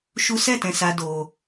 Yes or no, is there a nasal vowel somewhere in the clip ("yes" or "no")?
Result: yes